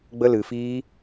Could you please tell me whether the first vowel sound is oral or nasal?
oral